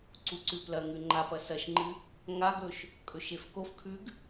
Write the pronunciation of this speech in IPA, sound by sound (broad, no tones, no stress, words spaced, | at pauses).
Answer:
ǀuǀʉplɐŋʉ ŋ͡ǃapɐ sɐʃŋ͡ǃɨ | ŋaɡɵʃ | kʼɵʃefkofkʰʉɡ